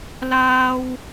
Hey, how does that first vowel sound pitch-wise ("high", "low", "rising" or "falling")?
high